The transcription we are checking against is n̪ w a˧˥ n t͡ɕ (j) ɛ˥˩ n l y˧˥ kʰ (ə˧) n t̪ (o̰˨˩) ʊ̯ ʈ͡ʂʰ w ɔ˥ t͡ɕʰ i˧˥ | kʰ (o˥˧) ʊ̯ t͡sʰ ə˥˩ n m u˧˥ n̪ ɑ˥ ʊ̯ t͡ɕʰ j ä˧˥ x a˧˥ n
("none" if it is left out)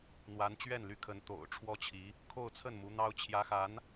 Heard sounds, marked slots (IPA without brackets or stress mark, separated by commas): ɥ, ə˧˥, o̰˨˩, o˥˧